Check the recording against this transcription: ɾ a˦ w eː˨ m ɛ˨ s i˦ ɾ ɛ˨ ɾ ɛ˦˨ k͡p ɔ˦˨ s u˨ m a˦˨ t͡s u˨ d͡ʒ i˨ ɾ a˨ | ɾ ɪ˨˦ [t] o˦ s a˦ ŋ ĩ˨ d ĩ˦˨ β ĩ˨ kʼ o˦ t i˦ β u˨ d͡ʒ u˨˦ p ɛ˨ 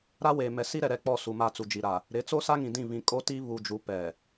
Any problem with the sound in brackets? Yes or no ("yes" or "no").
yes